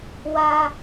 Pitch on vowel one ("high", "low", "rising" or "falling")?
high